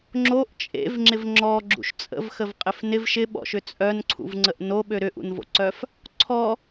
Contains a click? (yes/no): yes